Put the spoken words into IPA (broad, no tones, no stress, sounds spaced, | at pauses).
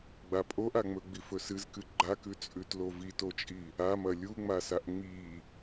ɡ͡b a pʼ o ʔ a ŋ͡m ɵ ɡ͡b i f ɵ s ɨ z k ɨ ɡ͡ǃ a k ʉ t͡sʼ ʉ t l o v i t o t͡ʃʼ i | a m ɐ lʲ u ŋ͡m a s a ʔ ŋ͡m i